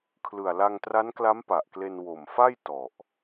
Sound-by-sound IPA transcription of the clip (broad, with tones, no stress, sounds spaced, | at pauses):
kʰ l ɯ˨˩ a̯ l a˧ ŋ t r a˦˥ n k l a˦˥ m p a˨˩ ʔ k l e˧ n w o˨˩ m f a˥˩ j t ɔ˨˩ ʔ